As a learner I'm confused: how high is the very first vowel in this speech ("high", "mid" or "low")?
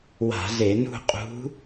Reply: low